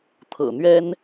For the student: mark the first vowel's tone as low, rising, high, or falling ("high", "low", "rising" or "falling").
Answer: low